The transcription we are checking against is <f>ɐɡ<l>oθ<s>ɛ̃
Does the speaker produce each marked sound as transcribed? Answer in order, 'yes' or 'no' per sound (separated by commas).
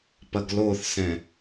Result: no, yes, yes